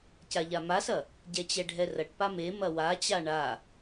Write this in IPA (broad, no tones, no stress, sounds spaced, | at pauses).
c a ʎ a m a s ɐ | ɟ ɛ t͡ɕ ɛ ɖʱ ɛ r ɐ ʈ p a m e m ɐ w a t͡ɕ a ɳ a